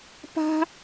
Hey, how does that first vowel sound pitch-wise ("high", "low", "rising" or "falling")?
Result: high